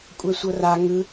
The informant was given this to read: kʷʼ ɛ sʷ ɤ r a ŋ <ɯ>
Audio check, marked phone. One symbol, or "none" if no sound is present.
ɯ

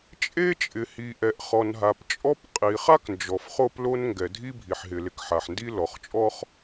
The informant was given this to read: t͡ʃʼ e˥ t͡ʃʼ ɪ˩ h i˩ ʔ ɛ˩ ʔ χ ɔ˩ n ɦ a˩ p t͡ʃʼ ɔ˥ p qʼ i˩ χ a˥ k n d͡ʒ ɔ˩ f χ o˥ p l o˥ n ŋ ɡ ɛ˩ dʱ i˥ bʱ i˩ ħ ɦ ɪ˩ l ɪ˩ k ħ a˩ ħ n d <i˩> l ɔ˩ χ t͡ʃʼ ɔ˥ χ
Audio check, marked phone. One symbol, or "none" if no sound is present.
i˥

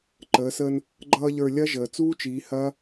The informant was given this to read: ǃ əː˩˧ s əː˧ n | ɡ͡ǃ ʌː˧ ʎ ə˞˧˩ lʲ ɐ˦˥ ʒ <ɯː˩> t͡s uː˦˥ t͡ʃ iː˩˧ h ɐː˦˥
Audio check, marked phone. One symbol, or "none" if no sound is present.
əː˩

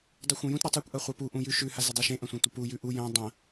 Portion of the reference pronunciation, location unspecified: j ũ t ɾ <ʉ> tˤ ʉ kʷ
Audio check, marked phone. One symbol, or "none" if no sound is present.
ʉ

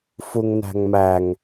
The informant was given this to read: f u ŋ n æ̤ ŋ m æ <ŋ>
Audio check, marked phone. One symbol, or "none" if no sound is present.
ŋ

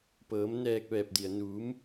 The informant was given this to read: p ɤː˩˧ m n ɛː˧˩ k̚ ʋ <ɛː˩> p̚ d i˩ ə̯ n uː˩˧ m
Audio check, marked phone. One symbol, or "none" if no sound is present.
ɛː˧˩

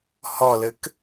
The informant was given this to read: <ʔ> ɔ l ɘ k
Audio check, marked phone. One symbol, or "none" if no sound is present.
h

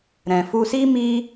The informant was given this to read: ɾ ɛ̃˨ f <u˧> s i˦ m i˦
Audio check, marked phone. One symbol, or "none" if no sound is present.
u˧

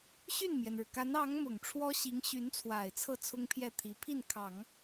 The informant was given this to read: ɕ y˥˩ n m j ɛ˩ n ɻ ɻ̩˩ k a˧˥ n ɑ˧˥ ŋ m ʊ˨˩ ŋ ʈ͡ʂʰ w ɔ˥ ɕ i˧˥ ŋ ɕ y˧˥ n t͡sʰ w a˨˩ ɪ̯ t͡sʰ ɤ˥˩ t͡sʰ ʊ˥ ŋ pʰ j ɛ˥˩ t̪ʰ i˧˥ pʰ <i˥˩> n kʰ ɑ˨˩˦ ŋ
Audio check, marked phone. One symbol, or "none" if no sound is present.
i˥˩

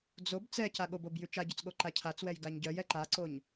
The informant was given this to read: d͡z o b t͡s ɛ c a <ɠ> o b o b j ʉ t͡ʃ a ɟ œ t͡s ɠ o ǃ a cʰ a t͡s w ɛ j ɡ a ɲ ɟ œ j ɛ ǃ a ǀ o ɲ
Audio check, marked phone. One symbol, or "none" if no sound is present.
ɠ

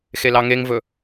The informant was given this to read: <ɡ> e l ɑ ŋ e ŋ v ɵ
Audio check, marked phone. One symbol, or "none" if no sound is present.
x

